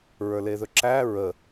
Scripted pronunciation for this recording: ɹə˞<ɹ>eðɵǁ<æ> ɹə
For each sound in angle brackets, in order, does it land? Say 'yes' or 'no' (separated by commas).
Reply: no, yes